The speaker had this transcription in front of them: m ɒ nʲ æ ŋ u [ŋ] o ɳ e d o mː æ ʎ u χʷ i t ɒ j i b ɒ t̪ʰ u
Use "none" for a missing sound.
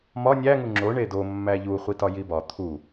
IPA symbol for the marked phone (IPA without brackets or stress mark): ŋ͡ǁ